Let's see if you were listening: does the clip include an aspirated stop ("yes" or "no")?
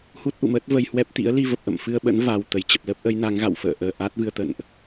no